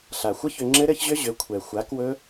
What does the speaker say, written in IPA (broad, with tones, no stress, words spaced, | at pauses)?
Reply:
ɬa˨xʷə˦çʏ˧ ŋ͡ǁɘ˦ɾɘ˦çʑʏ˦ ʑʏ˨˦ kʷʰɛ˨xʷa˨˦kwɵ˦